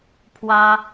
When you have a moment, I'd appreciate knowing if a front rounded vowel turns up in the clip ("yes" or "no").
no